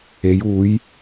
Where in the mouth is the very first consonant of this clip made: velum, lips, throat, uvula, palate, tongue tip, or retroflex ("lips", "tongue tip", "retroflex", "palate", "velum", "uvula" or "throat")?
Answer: palate